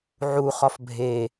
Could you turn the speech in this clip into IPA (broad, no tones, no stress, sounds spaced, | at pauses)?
ʕ u χ ɒ f bʱ e